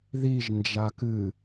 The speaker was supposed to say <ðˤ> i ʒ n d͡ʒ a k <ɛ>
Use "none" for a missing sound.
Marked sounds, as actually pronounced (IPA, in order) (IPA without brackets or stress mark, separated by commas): ð, ɨ